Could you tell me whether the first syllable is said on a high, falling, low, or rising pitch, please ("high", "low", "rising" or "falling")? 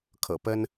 low